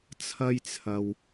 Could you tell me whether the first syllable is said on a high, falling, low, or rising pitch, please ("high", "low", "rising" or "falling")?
high